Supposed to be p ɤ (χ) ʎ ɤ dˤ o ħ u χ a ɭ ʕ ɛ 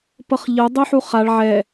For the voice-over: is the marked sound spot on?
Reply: yes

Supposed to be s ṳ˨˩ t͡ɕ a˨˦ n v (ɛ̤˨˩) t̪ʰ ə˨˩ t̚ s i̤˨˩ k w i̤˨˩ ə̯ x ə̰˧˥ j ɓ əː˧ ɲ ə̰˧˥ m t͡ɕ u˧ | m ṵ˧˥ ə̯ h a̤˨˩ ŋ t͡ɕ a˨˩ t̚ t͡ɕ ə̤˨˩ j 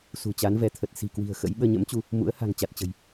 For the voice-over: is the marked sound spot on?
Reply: no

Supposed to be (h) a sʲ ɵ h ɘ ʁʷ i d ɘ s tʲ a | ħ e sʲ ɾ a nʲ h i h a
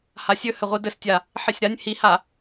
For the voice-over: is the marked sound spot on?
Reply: yes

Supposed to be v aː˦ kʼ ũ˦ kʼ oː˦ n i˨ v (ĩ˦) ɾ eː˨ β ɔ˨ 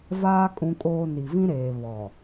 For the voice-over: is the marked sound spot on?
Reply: yes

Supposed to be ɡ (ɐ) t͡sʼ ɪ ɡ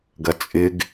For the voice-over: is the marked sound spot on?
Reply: yes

